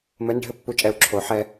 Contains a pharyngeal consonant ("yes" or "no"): yes